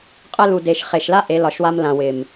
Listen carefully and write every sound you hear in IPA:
qʼ ə˦ l u˨ d e˨ ʃ χ e˨ ʃ l a˦ ʔ e˨˦ l ɒ˨ ʃ w a˦ m l ã˨ w ɪ˨ m

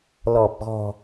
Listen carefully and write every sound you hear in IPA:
l ɔ˨˩ p̚ ɣ ɔ̤˨˩

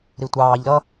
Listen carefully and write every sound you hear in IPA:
ɾ i tʷ ɑː ʎ ɾ ʌ

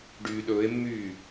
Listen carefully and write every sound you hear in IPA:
ɖ yː ɗ ɵː e̯ mː yː

